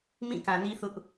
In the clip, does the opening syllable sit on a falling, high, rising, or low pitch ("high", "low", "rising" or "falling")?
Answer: falling